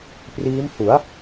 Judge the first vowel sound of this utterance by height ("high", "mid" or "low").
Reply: high